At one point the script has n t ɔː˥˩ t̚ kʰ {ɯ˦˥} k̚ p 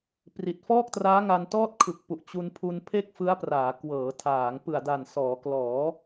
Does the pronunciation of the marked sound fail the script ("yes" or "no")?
yes